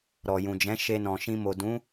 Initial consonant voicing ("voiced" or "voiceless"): voiced